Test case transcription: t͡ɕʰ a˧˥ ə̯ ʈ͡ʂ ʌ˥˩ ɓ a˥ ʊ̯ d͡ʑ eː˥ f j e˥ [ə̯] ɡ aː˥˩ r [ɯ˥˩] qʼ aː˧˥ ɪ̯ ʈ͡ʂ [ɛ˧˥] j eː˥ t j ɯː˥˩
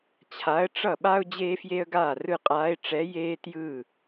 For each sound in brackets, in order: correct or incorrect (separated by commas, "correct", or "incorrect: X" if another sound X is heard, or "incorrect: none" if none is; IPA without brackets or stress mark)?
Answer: correct, correct, correct